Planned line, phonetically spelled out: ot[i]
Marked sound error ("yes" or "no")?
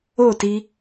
no